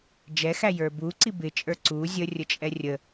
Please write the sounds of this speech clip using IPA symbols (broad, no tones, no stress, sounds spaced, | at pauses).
d͡ʒ ɛ x æ j ə˞ b u ǀ i b ɪ t͡ʃʼ ə˞ ǀ u zʲ ə rʲ ə t͡ʃʼ ɛ rʲ ə